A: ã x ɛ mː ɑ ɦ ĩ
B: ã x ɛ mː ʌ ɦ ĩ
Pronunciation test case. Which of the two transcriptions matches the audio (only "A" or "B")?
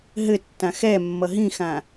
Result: B